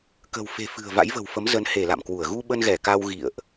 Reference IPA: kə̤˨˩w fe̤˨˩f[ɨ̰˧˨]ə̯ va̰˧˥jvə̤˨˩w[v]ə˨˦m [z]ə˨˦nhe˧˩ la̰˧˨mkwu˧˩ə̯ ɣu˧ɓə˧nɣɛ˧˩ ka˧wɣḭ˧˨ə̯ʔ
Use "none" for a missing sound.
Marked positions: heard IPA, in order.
ɨ̤˨˩, f, z

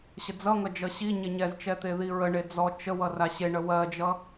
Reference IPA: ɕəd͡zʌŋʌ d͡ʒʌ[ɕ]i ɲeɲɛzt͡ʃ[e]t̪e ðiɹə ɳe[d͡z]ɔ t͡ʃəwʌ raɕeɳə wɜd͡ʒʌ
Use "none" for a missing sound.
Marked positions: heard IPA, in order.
ɕ, ɛ, d͡z

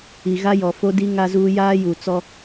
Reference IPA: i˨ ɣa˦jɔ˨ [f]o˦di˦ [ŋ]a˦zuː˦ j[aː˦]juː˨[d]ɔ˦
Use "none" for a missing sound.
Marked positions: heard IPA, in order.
f, ŋ, aː˦, t͡s

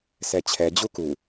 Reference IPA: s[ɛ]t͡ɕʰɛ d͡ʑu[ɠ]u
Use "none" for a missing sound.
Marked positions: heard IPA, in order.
ɛ, k

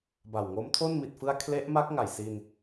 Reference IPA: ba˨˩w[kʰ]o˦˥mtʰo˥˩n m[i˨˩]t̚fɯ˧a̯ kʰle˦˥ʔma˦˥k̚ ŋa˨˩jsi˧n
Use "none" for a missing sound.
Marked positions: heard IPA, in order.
ŋ, i˨˩

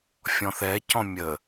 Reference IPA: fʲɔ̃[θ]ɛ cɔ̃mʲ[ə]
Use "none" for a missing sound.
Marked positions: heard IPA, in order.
θ, ə

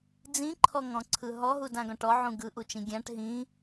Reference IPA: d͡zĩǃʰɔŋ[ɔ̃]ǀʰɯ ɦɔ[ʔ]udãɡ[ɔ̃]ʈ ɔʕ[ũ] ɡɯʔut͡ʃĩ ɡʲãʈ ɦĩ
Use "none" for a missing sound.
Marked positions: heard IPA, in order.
ɔ̃, ɦ, ɔ̃, ũ

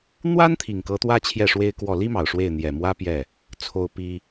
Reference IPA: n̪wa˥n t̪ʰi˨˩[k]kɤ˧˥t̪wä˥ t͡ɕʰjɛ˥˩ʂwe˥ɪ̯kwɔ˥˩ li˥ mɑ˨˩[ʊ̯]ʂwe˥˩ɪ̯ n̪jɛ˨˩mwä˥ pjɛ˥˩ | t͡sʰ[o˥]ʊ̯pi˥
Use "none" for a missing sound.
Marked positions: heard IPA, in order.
ŋ, ʊ̯, o˥

